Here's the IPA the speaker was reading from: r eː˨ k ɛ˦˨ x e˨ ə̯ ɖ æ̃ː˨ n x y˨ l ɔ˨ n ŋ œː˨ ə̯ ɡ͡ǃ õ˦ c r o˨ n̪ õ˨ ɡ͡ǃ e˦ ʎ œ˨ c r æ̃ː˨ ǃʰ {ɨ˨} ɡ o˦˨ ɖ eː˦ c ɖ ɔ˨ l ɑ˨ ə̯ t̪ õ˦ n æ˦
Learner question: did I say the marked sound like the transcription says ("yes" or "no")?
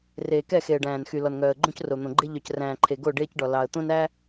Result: no